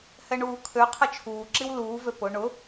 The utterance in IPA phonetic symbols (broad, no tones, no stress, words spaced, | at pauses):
hɛɳuːkʰøqʰə t͡ʃʰuːǁiw luːvø pʊ ɳʊ